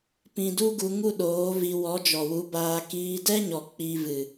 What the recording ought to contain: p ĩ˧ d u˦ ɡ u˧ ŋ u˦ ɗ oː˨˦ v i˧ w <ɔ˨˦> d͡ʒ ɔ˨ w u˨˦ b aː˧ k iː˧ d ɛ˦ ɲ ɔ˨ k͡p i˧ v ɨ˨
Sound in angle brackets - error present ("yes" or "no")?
no